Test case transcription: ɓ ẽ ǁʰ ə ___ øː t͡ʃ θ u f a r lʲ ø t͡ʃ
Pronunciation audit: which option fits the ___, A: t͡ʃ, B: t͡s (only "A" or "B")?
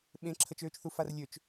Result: A